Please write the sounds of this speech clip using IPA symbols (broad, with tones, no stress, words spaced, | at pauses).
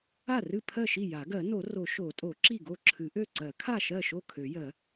a˥˩rɨ˥˩pʰɜ˥˩ʃi˥˩ ja˨˩˦ɡɜ˨˩˦ no˨˩˦ro˨˩˦ ʃo˨˩˦tʼo˨˩˦ ǁi˥˩ɡo˥˩ǁʰɨ˨˩˦ʔø˥˩ ǀɜ˨˩˦kʰa˥˩ʃɜ˥˩ʃo˥˩ kʰø˨˩˦jɜ˨˩˦